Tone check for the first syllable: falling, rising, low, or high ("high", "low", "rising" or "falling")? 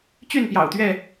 falling